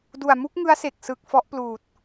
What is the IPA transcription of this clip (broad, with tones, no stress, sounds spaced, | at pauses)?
d u˨˩ a̯ m u˦˥ k̚ ŋ ɯ˦˥ a̯ s e˨˩ k̚ s ɯ˨˩ k̚ f ɔ˦˥ ʔ p l uː˨˩ t̚